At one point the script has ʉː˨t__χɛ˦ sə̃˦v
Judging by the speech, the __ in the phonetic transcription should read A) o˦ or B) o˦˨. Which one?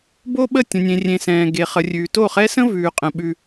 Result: B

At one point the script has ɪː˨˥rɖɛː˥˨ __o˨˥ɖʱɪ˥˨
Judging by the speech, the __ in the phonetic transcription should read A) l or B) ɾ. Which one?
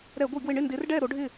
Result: B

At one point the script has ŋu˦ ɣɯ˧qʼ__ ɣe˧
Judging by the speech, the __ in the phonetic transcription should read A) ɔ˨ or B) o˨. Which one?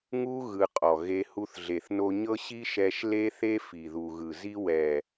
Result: A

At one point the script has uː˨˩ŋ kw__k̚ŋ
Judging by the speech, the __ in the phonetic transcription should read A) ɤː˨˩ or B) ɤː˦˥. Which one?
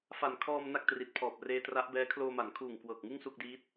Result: A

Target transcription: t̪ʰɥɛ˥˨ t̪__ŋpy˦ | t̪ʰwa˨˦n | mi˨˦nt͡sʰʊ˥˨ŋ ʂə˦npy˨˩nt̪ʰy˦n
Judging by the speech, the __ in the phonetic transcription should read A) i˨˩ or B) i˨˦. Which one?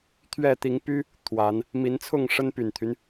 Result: B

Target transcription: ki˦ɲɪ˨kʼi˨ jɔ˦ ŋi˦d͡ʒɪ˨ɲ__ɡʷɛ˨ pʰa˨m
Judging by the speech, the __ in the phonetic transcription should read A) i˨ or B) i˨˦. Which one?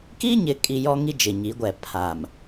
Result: B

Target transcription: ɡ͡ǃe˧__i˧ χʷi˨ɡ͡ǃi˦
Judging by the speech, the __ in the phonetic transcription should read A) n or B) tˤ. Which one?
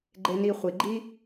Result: A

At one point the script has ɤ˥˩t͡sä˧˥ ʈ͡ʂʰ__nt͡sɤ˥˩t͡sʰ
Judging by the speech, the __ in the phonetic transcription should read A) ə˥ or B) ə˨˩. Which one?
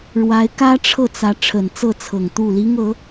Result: B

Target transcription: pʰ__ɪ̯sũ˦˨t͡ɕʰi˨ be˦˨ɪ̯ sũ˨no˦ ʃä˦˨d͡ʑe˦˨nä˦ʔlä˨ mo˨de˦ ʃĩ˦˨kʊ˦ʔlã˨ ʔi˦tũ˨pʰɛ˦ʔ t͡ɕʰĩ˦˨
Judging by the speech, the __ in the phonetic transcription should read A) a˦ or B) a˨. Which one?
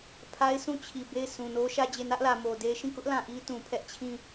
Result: A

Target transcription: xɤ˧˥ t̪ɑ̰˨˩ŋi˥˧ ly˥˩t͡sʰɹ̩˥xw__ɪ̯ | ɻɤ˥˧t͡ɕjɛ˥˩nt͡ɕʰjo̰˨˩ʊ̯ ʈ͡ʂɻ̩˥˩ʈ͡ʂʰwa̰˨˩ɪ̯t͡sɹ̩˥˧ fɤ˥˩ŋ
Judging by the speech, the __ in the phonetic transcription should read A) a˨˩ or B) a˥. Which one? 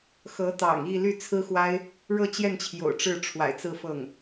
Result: B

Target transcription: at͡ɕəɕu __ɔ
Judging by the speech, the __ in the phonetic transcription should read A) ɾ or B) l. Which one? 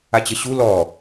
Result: B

